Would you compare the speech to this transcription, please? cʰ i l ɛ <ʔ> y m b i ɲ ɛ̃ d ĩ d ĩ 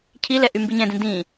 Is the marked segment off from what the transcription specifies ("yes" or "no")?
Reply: no